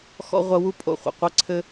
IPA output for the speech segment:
x ɔ̰˦ ʁʷ ɐ˦ w u˦ pʼ o̰˧ χʷ ɛ̰˨ qʷ e˦ ǀʰ ɘ˦

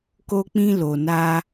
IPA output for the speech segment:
k o˧ k͡p ĩ˧ l o˨ n a˧

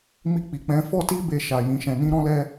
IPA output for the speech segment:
m i˧ k͡p i˨ k͡p ɛ̃˨˦ f ɔ˦ t i˦ b e˧ ʃ a˨ j ĩ˨˦ ʃ ɛ̃˧ n ĩ˦ ɾ ɔ̃˦ l ɛ˦

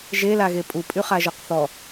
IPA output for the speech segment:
ʒ e l a ɣ e pʼ u pʼ y χ a ʒ ɔ q θ ɔ

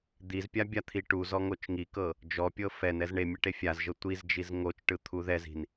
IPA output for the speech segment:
d̪ i z pʲ a bʲ a t̪ʰ i ʈ u z ɔ ŋ o t͡ʃ ŋ i k ɤ | d͡ʒ ɔ pʲ ɤ f ɛ n ɛ z ɳ e mʲ ɛ ʈ e fʲ a z ʒ ɤ tʷ i z d͡ʒ i z ŋ o t͡ʃ ʈ ɯ t̪ʰ u ð ɛ z i̤ n

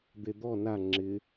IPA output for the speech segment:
d̪ e d̪ ɔ n a ŋ͡ǁ ɪ

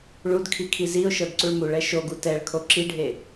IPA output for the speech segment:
ɭ u d kʰ i kʰ i z i ʊ̯ ʃ ɤ d ǀ u ɭ m u ɭ ɛ ʃ o ɡ u t ɛ ɭ kʰ o ǁ i ɖʱ e

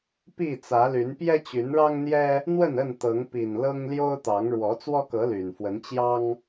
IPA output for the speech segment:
p i˥˨ t͡s ä˨˦ l y˨˦ n p j ɛ˦ t͡ɕ y˨˦ n ɻ ɑ˦ ŋ n̪ j ɛ˦ | n̪ w ə˥˨ n ə˥˨ n t̪ ɤ˨˦ ŋ p i˨˩ n l ɤ˦ ŋ l j o˦ ʊ̯ t̪ ɑ˨˦ ŋ ɻ w ɔ˨˦ t͡s w ɔ˦ k ɤ˨˦ l y˨˩ n f w ə˨˦ n t͡ɕ j ɑ˦ ŋ

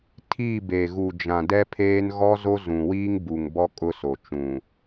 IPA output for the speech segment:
tʰ i˦˨ b e˨ ɣ u˨ d͡ʒ ã˨ d ɛ˦ pʰ eː˦ n ɣ ɔ˦ z o˦ z ũ˨ w iː˦ ŋ b u˨ ŋ b ɔ˦ kʼ ʊ˦ s o˨ t͡ʃ ũ˨

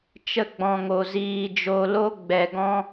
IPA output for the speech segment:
t͡ʃ ə˧ ɡ͡b ɔ̃˨ ŋ o˨ z iː˨ d͡ʒ o˨ l o˧ ɡ͡b ɛ˨ ɡ ɔ̃˦

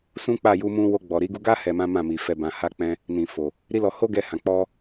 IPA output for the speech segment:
s ũ˦ k͡p a˦˨ j u˧ m ũ˧ w o˧ ɡ͡b ɔ˨ ɾ i˨˦ ɡ u˧ ɡ a˦ h ɛ˧ m ã˦ m ã˦˨ m i˨ f ɛ˨ b ã˨ h a˧ k͡p ɛ̃˧ | n ĩ˨ f o˨ | ɾ i˦ l ɔ˧ h o˦ ɡ ɛ˧ h ã˨ k͡p ɔ˧

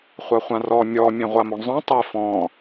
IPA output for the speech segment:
χʷ a χʷ ã r ɔ mʲ ɔ mʲ ẽ ʁʷ a m o ɳ zˤ õ tˤ e f ɔ̃

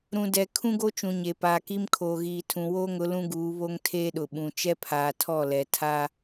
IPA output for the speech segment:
ɾ ũ˨ d ɛ˨ kʰ ũ˦ ɡ o˦ t͡ʃ ũ˨ ɲ e˨ p aː˨ k i˦ m kʰ oː˨ ɣ iː˨ tʰ ũ˨ w oː˦ ŋ ʊ˨˦ l ũ˦ ɡ uː˨˦ β o˦ ŋ tʰ eː˦ ɗ ʊ˨ ɓ ũ˨ t͡ʃ ɛ˦ pʰ aː˨ tʰ ɔ˦˨ l ɛ˨ tʰ a˦

